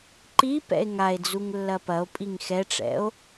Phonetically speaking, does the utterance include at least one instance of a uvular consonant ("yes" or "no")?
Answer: no